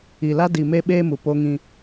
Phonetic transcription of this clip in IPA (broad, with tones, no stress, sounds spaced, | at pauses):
i˨ l a˦ d i˨ m e˦ ɓ eː˦ m u˨ p o˦ ŋ ĩ˦